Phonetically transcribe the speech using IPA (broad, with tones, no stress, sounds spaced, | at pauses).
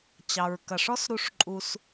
t͡ɕ ɑ˩ ɹ k ɐ˩ ʂ ɔ˥ s ɾ u˧ ʂ ǃʼ u˧ s